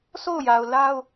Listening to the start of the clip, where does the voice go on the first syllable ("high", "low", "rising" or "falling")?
falling